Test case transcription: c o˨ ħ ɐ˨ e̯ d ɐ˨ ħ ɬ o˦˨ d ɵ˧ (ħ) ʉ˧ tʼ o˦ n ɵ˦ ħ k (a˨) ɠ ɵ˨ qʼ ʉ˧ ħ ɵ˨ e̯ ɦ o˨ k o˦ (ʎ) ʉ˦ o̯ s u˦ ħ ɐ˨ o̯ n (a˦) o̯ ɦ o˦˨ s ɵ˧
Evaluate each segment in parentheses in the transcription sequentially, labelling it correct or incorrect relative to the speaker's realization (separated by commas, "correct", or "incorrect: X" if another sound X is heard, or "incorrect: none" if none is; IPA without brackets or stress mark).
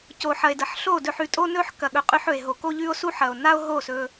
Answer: correct, incorrect: ɐ˨, correct, correct